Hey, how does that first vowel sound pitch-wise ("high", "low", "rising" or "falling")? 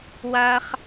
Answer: high